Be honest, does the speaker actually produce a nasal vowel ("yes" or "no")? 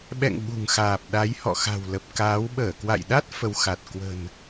no